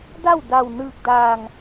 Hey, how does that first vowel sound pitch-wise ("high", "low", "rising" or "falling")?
falling